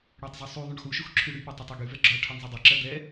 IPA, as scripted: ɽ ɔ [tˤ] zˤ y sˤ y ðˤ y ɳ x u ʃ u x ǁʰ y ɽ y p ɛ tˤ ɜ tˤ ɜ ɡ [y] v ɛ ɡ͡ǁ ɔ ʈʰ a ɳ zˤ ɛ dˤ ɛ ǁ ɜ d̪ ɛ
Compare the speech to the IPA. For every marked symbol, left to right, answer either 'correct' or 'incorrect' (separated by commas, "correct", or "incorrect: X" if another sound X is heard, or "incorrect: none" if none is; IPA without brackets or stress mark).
correct, correct